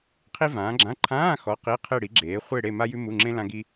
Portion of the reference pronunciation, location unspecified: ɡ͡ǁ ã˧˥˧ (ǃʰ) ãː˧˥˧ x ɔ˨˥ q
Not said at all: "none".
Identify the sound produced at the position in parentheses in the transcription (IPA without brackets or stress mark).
ǃʰ